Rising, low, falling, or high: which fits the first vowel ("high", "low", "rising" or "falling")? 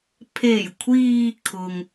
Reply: low